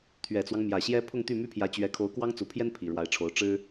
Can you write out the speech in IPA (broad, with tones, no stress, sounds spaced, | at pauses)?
t̪ʰ ɥ ɛ˨˩ t͡s w ɑ˦ ŋ m j ä˨˩ ɕ j ɛ˥ pʰ ʊ˥˧ ŋ t̪ y˥˩ m y˥ pʰ j ä˧˥ t͡ɕ ɥ ɛ˧˥ kʰ o˧˥ ʊ̯ k w ɑ˥ ŋ t͡s u˨˩ pʰ j ɛ˥ n pʰ i˨˩ ɻ w a˧˥ ɪ̯ ʈ͡ʂʰ o˧˥ ʊ̯ ʈ͡ʂ ɻ̩˥